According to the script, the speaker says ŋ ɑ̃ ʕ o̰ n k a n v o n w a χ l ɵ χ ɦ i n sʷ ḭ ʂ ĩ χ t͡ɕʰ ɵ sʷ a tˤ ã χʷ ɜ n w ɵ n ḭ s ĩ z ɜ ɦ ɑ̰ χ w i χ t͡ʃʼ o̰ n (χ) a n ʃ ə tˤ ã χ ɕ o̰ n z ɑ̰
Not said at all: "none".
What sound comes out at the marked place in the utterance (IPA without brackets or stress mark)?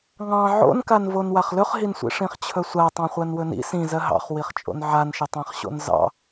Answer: ʕ